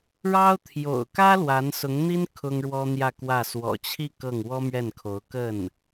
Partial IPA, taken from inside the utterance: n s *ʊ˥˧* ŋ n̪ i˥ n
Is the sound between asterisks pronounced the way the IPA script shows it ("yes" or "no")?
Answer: no